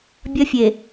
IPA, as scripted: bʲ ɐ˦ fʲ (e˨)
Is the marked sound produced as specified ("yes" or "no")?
yes